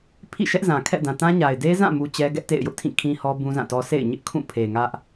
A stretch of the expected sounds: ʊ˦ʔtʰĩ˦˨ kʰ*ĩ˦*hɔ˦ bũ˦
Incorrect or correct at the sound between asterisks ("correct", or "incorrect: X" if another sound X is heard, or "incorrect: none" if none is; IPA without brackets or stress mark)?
correct